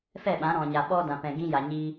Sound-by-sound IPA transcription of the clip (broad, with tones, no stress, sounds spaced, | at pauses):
f ɛ˦˨ ɓ ã˨˦ ɾ ɔ̃˨ ɲ a˨ ɓ ɔ˦ d ã˨ p ɛ̃˨ ɡ ĩ˦ j a˨ ɲ iː˦